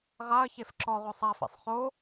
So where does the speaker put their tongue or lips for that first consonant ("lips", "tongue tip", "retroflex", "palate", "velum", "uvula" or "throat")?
uvula